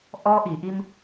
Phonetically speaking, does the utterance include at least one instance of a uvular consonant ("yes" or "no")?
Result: no